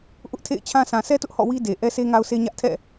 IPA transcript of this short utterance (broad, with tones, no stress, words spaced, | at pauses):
ʔʊ˦ʔtʰḛ˦˨ɪ̯t͡ɕʰã˦ sã˨sʰɛ˦tʊ˦ʔ hɔ̰˦˨wi˦ de˨ ʔɛ˦se˦ŋa˦ʊ̯sʰe˦ ɲä˦ʔ tʰɛ̰˦˨